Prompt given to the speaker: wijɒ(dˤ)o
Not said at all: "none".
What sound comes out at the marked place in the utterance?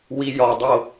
dˤ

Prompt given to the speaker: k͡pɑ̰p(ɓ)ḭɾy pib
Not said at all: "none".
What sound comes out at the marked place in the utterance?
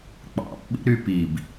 ɓ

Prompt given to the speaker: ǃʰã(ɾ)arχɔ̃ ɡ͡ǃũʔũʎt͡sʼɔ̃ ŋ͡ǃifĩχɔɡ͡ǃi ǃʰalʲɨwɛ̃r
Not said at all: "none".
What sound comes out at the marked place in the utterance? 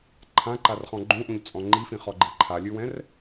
ǃ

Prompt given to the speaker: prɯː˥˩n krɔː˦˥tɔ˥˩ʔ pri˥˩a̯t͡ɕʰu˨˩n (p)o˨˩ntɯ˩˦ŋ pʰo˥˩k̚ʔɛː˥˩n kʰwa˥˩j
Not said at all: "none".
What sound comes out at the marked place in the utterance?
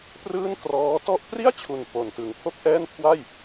p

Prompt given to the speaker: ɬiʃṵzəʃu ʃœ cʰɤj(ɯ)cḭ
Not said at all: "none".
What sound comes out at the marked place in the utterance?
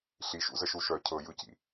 ɯ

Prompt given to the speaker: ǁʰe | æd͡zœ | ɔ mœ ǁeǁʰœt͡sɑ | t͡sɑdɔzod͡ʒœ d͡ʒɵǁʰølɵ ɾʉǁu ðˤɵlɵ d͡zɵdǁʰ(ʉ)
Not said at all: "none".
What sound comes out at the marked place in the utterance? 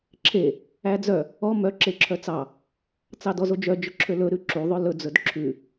ʉ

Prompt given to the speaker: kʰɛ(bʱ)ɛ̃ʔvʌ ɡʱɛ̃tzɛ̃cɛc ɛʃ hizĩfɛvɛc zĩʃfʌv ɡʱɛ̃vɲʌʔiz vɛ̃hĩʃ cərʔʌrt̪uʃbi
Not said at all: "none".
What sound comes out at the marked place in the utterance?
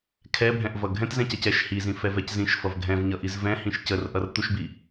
bʱ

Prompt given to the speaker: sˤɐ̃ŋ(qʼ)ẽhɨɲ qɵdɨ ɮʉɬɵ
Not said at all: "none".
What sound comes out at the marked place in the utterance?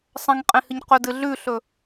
qʼ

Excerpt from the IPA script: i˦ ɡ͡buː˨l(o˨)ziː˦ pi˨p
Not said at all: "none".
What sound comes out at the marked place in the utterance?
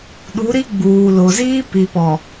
o˨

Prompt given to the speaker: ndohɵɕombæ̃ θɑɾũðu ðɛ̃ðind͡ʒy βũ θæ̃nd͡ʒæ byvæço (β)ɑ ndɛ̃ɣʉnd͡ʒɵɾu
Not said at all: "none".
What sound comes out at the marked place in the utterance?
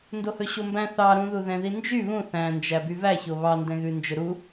β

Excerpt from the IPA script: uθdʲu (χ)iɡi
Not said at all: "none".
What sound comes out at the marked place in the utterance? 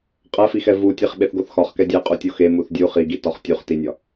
χ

